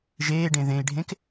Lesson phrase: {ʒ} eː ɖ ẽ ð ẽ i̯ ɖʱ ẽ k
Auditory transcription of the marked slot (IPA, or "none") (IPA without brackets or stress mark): ʒ